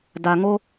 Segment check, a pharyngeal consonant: absent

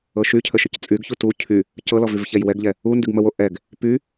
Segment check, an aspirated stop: present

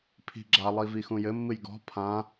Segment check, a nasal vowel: present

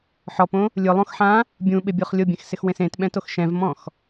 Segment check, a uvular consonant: present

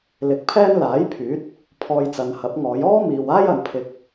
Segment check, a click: absent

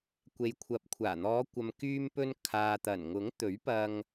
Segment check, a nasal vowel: absent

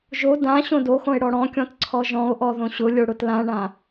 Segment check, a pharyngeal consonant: absent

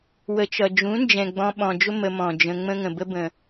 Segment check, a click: absent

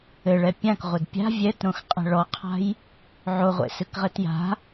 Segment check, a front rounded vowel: absent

